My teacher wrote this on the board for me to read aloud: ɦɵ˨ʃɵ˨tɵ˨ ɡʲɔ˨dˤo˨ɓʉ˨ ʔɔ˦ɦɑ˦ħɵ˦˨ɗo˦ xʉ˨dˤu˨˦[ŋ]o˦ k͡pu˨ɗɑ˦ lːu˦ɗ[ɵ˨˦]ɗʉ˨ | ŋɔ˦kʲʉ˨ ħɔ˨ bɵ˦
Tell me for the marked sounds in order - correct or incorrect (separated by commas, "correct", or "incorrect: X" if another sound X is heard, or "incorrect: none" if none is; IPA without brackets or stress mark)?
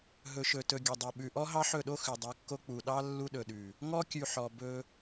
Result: incorrect: kː, incorrect: ɵ˨